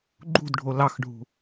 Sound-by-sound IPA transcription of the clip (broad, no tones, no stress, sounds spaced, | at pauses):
ɡ͡ǃ ṳ d ɖʱ o l ɑ x ɖʱ ṳ